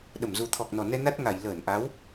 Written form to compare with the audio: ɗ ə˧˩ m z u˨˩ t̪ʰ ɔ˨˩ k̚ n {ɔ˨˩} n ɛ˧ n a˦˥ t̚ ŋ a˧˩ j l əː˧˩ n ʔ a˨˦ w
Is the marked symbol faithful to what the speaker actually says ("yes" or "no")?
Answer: yes